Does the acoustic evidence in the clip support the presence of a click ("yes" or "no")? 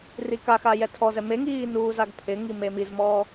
no